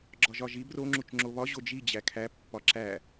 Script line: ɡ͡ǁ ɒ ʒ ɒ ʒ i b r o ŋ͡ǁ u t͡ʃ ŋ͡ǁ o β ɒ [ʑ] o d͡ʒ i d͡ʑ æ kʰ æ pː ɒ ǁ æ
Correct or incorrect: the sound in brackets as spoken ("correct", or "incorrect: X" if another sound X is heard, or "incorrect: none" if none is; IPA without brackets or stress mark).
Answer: correct